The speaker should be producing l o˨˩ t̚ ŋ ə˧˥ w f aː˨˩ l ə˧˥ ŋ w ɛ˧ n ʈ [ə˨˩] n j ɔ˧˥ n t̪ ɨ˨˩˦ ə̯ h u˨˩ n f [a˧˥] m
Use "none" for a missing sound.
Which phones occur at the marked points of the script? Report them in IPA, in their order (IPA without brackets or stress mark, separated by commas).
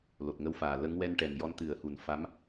ɛ˨˩, a˧˥